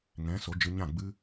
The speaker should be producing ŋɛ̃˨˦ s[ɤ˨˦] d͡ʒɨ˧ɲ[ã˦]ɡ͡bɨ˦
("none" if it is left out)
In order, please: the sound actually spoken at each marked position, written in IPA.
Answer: o˨˦, ã˦˨

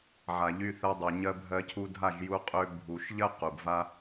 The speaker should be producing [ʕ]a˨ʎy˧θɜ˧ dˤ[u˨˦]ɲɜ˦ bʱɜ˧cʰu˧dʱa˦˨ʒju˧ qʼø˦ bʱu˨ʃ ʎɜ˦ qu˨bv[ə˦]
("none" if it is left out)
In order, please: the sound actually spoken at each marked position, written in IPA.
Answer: ʕ, u˨, a˦

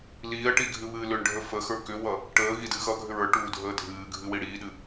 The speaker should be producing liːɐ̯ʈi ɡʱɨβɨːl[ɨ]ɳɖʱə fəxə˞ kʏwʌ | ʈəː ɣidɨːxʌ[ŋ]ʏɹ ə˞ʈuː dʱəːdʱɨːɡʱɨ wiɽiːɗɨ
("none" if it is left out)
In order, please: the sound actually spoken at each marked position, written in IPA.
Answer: ʏ, ɡʱ

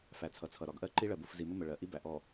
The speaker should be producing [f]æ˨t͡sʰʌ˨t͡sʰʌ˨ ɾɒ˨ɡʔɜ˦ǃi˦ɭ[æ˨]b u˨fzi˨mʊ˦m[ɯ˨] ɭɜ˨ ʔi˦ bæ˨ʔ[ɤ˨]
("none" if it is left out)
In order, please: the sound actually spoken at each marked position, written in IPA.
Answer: f, ɜ˨, ə˨, ɔ˨

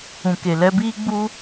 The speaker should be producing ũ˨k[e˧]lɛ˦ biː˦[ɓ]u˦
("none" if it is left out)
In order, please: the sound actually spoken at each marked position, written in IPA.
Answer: e˨, ɡ͡b

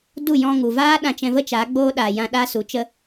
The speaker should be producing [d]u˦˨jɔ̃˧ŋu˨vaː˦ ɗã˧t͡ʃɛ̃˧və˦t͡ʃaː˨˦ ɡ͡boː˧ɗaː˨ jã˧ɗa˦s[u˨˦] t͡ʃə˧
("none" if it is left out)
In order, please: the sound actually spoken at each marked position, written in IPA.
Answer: d, u˨˦

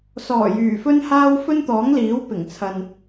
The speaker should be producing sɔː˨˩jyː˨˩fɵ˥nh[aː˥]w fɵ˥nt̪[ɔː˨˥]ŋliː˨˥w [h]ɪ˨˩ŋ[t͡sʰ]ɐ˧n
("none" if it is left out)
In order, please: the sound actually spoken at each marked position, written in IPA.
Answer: aː˥, ɔː˨˥, p, t͡sʰ

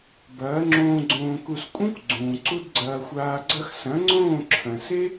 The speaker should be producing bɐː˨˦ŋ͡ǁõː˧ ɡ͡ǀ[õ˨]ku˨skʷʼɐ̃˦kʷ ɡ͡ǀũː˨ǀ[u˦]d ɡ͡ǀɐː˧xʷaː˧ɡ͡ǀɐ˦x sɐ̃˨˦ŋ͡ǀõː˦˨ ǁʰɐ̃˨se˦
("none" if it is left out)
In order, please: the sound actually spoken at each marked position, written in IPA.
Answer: õː˨, u˦

